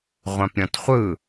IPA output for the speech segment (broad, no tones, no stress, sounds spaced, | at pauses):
ʁʷ ã p ɾʲ ɔ̃ t χʷ ɯ